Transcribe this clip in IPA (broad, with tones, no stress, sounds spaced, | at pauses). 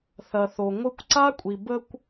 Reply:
θ ɐ˨ θ o˨ ŋʷ ɯ˧ kʷ ǀ a˦ kʷʼ i˨ b ə˧ kʷ